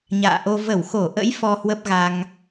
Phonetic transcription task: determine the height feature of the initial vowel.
low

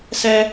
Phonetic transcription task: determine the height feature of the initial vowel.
mid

